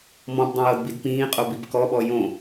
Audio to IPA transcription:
m ɔ̃ b dˤ ĩ j ɤ d b i d p ĩː qʼ o b i b k ɔ ɓ ɔ j õ

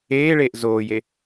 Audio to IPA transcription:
eː ɭ eː ʔ z oː j e

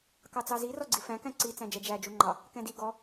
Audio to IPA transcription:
k ɑ t͡s ɑ z i r ɔ ɡ͡ǀ i f æ̃ k æ̃ ǀ i t͡s æ̃ d͡ʒ ɛ d͡ʒ æ d͡ʒ u ŋ͡ǃ ɑ | k ɛ̃ d i ɡ ɔ

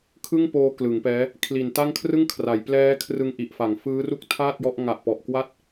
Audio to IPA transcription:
kʰ ɯ˥˩ ŋ p oː˧ k l ɯ˩˦ ŋ p ɛː˦˥ | kʰ l i˨˩ n t a˥˩ ŋ kʰ r ɯ˥˩ ŋ kʰ r a˩˦ j p l ɛː˦˥ kʰ r ɯ˧ ŋ ʔ i˨˩ ʔ f a˨˩ ŋ f ɯː˦˥ r u˥˩ k̚ tʰ aː˥˩ t̚ j ɔ˦˥ ʔ ŋ a˨˩ ʔ p ɔ˨˩ ʔ k w a˦˥ t̚

